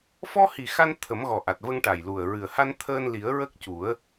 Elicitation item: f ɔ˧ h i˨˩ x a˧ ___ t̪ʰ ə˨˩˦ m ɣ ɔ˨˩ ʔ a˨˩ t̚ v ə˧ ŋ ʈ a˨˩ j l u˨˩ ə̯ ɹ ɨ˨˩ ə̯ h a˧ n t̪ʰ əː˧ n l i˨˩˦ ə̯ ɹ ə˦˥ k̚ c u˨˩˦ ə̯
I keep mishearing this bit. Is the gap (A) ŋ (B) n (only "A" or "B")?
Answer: B